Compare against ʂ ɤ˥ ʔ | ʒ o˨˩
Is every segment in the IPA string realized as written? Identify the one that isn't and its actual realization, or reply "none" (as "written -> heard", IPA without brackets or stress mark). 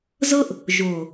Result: ʂ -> z